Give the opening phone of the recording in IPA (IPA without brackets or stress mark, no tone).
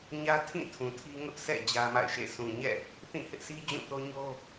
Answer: ɲ